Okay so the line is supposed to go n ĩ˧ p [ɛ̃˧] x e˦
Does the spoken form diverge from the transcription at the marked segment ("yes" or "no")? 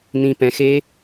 no